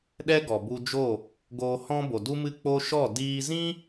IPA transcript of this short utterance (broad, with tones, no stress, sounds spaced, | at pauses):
ɗ ɛ˦ ɡ ɔ˨ b u˧ d͡ʒ o˦˨ | ɡ oː˧ h ɔ̃˦ b o˨ d u˦ m ɨ˦˨ k͡p o˧ ʃ ɔ˦˨ d iː˧ z ĩ˦